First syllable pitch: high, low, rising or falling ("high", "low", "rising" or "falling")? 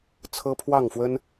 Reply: high